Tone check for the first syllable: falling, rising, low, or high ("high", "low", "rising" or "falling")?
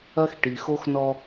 high